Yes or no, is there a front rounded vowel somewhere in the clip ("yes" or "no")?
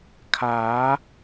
no